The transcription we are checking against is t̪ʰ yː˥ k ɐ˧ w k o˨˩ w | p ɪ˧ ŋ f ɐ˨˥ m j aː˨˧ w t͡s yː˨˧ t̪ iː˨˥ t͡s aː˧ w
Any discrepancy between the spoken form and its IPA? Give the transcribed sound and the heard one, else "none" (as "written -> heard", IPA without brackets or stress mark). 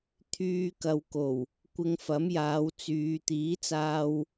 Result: p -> kʷ